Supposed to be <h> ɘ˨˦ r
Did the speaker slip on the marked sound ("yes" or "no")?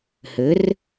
no